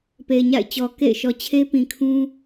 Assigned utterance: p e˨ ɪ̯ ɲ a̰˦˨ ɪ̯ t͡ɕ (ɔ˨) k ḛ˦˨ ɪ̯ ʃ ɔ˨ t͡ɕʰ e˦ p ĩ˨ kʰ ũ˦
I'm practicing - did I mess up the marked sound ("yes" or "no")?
no